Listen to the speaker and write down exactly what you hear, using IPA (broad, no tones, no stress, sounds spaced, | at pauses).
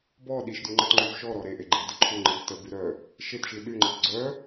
b ɔ ɗ i ʃ d y ŋ͡ǃ ə t ŋ͡ǃ y v ʃ ɔ ɾ ɔ ɾ e ʔ e ɡ͡ǃ i d ə ǃʰ u ŋ͡ǃ i d t ə b y ɾ œ | ʃ e t ʃ i ɗ y ŋ͡ǃ ə t ɡ͡ǀ œ